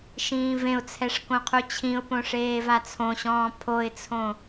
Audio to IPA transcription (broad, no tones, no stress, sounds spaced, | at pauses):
ʃ ĩː v ẽ ʊ̯ t͡sʰ ɛ ʂ k õ qʰ u t͡ɕʰ ĩ ʊ̯ p õ ʂ eː v a t͡sʰ õ ɕ ɔ̃ː pʰ o ɪ̯ t͡sʰ õ